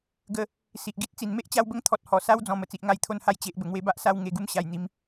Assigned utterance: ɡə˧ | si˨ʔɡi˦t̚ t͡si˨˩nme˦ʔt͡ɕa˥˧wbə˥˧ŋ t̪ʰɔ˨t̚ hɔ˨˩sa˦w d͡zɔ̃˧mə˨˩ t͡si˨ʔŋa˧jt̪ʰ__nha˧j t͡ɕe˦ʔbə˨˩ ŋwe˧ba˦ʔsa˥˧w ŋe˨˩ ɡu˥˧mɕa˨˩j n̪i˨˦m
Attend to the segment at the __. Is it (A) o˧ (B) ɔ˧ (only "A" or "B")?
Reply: A